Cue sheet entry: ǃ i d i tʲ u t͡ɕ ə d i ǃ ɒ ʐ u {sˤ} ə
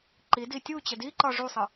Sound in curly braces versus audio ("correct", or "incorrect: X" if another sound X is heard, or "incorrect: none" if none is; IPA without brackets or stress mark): correct